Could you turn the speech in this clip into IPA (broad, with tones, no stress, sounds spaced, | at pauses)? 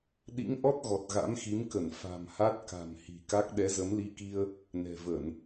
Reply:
ɗ ḭ˧˥ ŋ ʔ ɔ˦˥ t̚ ɣ ɔ˨˩ t̚ ɣ a̰˧˥ m x i˨˦ m k ə˧˩ n f a̤˨˩ m h a˦˥ t̚ k a̤˨˩ m h i̤˨˩ k a˦˥ k̚ ɗ ɛ˨˦ z ə˨˦ m l i˧ k i˧ ə̯ | n ɛ̤˨˩ v ə˧˩˨ n